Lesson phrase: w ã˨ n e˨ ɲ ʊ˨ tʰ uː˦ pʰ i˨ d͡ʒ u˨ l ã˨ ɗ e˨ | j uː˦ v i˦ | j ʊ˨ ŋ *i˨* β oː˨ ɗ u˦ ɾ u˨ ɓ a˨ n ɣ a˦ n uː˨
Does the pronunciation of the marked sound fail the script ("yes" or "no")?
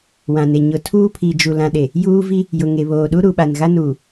yes